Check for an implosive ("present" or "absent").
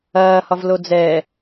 absent